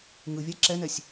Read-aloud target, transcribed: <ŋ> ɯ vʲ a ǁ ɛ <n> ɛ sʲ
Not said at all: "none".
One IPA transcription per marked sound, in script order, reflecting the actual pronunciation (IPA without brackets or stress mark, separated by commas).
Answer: ŋ, n